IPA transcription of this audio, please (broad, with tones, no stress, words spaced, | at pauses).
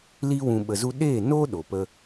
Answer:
li˦wũ˧ ɓə˧zu˦ ɗe˦˨no˦ ɗo˨pə˦